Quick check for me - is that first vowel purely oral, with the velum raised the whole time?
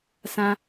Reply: no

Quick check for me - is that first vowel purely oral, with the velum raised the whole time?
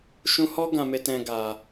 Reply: no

